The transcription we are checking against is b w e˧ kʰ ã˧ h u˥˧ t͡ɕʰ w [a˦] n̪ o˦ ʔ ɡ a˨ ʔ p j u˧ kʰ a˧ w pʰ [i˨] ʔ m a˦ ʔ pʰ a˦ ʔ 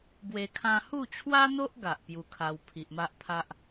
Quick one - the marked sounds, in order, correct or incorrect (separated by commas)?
correct, correct